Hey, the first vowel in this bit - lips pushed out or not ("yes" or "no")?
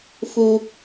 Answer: yes